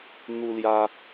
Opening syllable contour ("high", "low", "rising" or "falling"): high